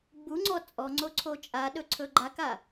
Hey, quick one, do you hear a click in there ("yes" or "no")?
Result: yes